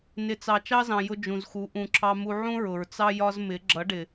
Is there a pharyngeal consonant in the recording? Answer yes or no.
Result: yes